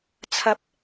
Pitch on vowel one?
rising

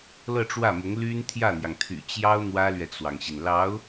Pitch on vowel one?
falling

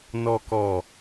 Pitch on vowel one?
low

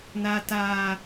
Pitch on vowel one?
high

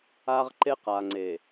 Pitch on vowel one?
high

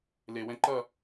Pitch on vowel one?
low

